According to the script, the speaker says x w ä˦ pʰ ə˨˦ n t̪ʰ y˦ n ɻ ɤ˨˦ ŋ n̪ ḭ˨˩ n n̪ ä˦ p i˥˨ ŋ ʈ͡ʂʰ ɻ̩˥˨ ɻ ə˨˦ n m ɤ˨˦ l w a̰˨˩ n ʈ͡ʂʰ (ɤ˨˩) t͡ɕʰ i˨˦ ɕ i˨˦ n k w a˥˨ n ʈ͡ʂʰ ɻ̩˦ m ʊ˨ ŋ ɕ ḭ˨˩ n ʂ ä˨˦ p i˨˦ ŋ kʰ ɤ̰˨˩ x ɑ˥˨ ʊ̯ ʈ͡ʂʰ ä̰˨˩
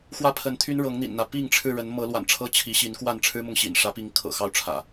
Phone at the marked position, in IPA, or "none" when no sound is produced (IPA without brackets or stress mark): ɤ˦